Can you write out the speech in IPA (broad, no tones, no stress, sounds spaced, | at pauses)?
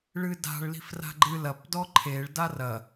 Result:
ɭ ɨ d a̤ ɭ l i̤ f r a̤ ɡ͡ǃ ɨ l ɐ p d ɔ ǃʰ e ɭ d a r ɐ